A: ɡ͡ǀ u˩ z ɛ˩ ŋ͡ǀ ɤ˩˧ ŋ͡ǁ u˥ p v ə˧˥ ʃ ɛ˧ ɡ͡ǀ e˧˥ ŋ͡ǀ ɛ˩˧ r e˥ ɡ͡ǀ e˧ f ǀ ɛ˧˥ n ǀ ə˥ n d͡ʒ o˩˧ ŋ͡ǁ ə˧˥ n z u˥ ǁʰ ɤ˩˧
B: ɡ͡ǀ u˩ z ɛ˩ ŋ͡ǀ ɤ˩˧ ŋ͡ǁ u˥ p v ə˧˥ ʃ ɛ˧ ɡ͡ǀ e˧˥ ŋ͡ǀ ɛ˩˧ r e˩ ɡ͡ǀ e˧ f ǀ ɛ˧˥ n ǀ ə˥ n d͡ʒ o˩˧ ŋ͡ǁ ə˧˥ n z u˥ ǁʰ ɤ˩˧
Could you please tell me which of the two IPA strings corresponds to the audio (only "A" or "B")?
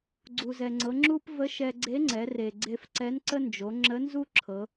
B